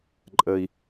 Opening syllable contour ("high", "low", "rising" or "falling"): low